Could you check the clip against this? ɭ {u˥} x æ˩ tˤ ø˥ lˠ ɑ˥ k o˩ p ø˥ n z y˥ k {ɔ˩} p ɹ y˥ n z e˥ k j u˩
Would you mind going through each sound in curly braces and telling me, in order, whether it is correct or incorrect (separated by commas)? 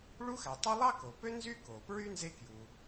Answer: correct, incorrect